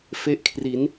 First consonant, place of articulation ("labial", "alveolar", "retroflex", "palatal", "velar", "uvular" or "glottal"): labial